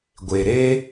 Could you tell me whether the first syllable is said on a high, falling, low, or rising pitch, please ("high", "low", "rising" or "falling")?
low